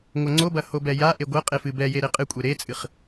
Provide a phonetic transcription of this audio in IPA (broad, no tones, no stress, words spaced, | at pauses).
ŋʷɐŋ͡ǀobɐ hobɛjaʔe ɡʷɐ qʼefɨbɛje ɾeqʼɨkʷʼe ɾet͡sʼɨχ